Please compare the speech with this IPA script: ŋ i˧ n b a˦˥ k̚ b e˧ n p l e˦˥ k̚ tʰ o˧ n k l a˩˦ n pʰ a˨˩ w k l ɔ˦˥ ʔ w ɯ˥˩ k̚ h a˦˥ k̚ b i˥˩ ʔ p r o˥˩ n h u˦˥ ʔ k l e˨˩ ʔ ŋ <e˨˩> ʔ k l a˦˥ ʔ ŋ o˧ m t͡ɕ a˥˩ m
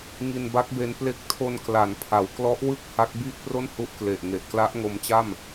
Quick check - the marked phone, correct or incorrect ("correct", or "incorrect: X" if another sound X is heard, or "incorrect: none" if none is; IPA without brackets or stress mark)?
correct